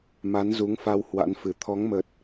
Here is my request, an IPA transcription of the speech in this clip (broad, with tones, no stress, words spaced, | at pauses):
ma˨˦nzu˨˦ŋ fa˧w hwa̰˧˥nfɨ˨˩ t̪ʰɔ˨˦ŋmə˨˩t̚